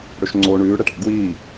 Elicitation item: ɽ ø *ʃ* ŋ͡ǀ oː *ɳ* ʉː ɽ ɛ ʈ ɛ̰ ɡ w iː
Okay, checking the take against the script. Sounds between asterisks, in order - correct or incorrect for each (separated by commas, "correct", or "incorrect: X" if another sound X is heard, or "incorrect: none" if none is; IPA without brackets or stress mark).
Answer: correct, correct